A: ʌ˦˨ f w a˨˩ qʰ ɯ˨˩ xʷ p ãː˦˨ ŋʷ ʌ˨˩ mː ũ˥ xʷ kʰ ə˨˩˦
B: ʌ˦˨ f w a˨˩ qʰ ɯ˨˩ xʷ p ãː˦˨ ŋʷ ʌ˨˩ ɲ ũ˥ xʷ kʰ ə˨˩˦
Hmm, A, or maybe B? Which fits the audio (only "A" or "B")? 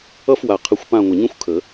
B